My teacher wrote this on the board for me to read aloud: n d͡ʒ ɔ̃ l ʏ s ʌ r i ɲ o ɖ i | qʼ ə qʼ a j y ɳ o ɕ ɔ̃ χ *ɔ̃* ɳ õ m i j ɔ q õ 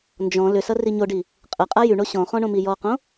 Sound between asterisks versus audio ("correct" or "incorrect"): correct